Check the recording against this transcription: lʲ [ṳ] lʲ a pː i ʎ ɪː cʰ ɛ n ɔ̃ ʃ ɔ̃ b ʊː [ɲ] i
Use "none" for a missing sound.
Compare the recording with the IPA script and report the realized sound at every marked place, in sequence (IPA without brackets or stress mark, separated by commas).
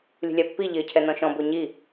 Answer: ṳ, ɲ